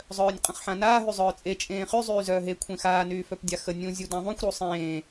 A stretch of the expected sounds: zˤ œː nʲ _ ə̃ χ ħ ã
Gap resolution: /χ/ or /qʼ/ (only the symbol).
qʼ